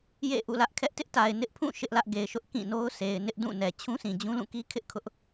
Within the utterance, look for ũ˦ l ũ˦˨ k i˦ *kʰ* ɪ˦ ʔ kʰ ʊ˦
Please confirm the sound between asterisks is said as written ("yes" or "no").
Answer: yes